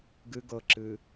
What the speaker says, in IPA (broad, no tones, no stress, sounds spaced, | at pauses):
ɡ ɨ ɡ ɤ ǁ ɨː